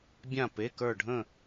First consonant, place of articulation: labial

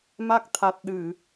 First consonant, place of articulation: labial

